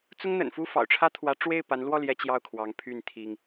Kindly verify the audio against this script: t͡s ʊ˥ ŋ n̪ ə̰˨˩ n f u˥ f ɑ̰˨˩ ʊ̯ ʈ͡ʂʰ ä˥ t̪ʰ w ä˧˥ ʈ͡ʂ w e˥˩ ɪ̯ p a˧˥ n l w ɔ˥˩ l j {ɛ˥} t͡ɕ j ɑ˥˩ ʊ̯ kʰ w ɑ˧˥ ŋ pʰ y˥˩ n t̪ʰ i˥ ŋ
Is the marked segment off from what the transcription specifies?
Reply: no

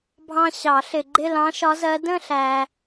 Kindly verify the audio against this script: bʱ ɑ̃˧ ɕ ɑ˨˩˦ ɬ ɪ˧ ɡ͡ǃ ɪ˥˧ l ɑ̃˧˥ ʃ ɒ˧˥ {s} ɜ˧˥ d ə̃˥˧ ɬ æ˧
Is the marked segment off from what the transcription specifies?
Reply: yes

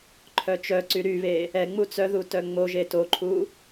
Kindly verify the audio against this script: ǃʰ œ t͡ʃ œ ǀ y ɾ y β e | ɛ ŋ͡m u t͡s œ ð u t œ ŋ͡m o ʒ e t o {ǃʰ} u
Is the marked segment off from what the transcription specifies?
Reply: no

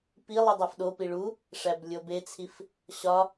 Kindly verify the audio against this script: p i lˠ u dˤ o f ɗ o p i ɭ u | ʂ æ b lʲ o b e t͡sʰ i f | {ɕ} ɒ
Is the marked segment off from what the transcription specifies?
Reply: no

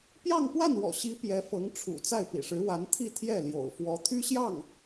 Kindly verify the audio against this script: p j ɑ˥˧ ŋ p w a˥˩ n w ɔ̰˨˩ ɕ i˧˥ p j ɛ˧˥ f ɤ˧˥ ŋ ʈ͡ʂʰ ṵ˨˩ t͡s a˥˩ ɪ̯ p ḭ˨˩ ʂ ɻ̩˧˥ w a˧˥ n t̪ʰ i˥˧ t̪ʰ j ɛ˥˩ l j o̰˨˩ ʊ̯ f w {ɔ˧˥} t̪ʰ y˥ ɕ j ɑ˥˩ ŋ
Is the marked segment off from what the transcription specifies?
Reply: no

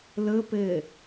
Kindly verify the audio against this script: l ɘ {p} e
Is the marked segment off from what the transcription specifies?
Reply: no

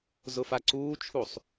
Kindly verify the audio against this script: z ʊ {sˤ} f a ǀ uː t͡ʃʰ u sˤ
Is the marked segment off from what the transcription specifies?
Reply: yes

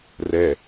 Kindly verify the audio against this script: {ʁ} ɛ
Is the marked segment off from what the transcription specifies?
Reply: yes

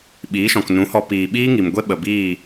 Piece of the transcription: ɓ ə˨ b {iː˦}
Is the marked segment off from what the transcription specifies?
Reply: yes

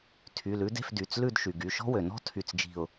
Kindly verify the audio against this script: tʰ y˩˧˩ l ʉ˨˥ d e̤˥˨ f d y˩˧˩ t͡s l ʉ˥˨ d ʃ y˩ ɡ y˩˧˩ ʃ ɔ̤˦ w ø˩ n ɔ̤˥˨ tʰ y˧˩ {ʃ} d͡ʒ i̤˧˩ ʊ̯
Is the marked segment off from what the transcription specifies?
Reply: yes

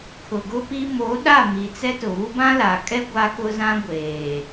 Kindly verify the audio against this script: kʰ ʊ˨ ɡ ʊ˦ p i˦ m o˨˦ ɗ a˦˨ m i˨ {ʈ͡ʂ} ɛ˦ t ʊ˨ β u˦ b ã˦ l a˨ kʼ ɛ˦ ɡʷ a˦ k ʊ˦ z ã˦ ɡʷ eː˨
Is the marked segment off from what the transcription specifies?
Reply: yes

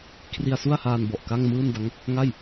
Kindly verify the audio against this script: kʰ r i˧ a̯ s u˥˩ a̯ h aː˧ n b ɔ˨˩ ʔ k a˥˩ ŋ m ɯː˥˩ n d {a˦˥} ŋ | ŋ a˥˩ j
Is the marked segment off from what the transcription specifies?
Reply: no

